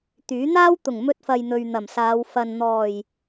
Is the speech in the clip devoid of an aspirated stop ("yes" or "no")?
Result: yes